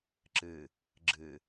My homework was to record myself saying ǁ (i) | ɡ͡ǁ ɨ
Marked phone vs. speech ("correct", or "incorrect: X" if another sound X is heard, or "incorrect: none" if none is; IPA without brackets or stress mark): incorrect: ɨ